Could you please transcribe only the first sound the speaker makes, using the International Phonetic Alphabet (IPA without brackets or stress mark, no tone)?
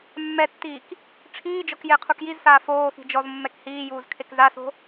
mː